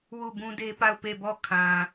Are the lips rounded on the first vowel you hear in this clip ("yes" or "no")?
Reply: yes